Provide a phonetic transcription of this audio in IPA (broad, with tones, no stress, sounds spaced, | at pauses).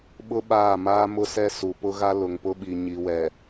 ɓ ʊ˦ ɓ aː˦˨ m aː˦ m ʊ˦ s ɛ˦ s u˨ p ʊ˦ ɣ a˦ l ʊ˨ ŋ p ʊ˦ ɓ i˨ ɲ i˨ w ɛ˨